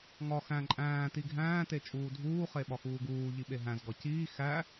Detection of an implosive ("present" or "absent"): present